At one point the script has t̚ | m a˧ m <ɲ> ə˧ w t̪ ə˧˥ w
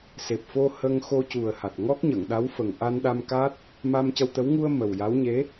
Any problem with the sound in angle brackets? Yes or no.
yes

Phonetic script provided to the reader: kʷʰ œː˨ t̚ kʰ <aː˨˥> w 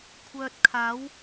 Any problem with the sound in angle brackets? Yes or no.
no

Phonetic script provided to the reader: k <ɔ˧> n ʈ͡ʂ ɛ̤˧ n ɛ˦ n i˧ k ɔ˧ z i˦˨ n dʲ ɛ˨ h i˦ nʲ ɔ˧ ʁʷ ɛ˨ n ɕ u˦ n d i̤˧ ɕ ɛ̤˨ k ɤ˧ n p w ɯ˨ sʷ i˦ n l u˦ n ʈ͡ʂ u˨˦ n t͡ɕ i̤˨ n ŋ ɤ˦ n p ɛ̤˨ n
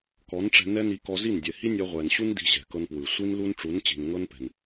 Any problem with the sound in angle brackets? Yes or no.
yes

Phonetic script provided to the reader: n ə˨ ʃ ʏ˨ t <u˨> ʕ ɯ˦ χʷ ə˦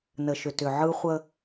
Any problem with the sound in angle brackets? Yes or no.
yes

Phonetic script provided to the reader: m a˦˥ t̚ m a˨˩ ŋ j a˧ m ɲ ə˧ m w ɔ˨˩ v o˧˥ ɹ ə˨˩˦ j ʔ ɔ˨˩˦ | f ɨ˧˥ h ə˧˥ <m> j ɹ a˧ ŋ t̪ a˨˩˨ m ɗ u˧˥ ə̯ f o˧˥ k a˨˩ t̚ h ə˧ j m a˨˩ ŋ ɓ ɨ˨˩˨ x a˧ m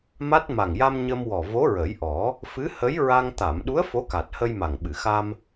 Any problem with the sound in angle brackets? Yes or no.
yes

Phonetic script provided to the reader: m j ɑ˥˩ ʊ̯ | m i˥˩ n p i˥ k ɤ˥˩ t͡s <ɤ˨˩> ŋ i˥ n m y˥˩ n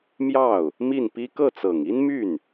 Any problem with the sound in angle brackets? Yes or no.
no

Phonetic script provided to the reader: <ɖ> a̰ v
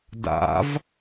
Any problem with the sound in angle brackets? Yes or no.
yes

